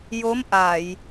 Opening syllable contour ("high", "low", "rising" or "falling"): rising